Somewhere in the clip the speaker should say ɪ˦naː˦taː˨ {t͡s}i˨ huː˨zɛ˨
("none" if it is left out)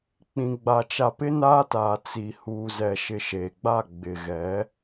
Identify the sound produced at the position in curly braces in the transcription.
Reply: t͡s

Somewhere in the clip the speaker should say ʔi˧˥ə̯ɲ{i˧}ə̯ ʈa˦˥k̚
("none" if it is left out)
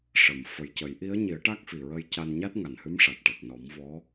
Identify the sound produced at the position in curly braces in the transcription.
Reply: i˨˩˦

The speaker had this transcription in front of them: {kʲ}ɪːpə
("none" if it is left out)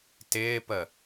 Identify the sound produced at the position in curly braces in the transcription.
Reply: t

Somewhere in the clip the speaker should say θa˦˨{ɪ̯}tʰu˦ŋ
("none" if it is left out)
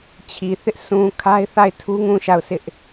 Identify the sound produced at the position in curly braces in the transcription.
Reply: ɪ̯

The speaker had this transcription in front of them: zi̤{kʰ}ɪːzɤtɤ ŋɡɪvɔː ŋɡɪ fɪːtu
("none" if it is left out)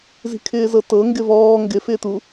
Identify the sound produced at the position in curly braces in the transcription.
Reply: kʰ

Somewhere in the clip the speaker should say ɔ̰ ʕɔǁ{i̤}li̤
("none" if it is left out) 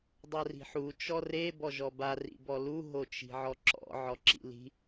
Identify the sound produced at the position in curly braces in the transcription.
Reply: ḭ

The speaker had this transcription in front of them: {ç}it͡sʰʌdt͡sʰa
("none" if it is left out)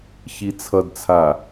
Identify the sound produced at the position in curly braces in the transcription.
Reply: ç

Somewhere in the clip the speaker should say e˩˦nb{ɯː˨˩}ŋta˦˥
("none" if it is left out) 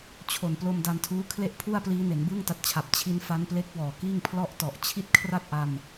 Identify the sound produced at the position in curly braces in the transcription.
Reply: ɯː˥˩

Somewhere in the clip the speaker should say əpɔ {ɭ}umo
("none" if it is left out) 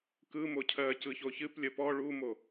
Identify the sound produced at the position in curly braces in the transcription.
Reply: ɭ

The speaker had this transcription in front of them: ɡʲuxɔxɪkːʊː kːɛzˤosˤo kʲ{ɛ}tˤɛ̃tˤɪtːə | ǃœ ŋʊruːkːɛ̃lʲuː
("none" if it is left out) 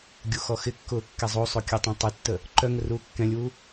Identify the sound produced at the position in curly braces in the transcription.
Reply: œ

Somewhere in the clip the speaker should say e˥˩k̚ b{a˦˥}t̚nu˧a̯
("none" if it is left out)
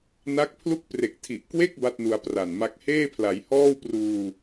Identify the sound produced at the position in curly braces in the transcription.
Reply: a˥˩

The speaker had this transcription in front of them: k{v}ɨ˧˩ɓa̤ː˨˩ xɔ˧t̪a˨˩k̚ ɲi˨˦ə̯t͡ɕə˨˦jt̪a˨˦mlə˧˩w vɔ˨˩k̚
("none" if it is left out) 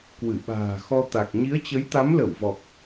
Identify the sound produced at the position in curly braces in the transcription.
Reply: w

